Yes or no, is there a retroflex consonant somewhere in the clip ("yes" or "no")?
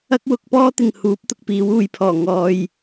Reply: no